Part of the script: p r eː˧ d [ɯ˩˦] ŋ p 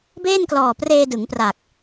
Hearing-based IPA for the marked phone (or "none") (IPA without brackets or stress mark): ɯ˩˦